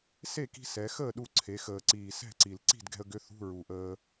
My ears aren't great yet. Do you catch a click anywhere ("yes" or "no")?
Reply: yes